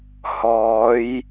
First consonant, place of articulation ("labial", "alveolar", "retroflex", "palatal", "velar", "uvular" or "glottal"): glottal